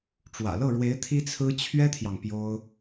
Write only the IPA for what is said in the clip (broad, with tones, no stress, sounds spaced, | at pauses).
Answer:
ʈ͡ʂ w ä̰˨˩ l ɤ˥˩ ɻ w e˧˥ ɪ̯ t̪ʰ i˥ t͡sʰ ɹ̩˥ t͡ɕʰ ɥ ɛ˥ t̪ʰ j ɑ˨ ŋ p j o˥ ʊ̯